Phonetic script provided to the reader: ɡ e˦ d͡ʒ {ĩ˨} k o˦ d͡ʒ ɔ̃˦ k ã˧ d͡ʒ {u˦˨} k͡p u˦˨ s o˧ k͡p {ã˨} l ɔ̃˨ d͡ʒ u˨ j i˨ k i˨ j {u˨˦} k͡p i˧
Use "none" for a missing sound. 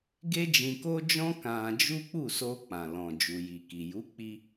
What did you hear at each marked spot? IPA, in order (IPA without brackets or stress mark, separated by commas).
ĩ˧, u˦, ã˨, u˨˦